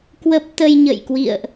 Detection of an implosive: absent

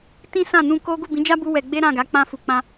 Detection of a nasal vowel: present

